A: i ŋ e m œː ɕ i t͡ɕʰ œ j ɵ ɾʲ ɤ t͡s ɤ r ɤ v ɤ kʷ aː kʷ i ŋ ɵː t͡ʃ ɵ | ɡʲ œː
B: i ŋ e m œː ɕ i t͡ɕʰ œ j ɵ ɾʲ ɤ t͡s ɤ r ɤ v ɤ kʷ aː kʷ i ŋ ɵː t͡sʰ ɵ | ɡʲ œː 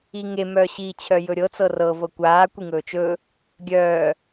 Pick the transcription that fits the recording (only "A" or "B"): A